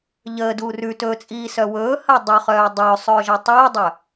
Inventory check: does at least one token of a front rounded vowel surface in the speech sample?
yes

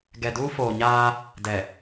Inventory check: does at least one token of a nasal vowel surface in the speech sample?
no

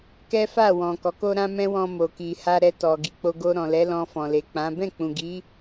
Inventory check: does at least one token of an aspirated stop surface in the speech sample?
no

